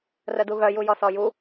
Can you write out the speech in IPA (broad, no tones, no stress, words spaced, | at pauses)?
rəduɣœ jujɔsɔju